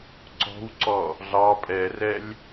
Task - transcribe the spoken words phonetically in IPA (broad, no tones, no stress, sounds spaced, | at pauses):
ǀ ɔ̤ w ǀ ɔ | ɮ ɑ pʼ ɛ r ɛ lʲ